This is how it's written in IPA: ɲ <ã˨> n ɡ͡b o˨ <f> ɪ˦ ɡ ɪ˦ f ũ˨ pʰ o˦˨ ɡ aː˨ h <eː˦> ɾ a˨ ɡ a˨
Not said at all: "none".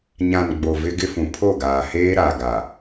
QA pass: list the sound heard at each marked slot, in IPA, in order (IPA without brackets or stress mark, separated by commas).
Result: ã˨, v, eː˦